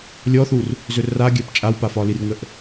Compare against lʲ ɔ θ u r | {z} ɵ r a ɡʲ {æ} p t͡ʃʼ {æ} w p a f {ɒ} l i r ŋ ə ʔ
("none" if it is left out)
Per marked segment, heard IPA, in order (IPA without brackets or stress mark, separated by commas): z, æ, a, ɒ